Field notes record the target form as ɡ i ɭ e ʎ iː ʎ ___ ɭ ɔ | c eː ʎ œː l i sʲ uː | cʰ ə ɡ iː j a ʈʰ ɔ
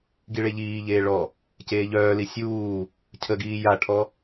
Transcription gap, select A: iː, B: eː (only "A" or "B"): B